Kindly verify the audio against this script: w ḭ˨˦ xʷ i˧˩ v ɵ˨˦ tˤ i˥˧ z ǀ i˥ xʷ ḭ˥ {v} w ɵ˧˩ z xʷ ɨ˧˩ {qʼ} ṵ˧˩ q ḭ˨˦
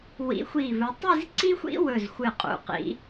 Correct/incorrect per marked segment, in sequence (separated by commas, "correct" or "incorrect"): incorrect, correct